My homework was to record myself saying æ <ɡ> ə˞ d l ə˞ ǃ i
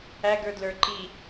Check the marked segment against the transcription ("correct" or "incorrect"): correct